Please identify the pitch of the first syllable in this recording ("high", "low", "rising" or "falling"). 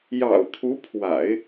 low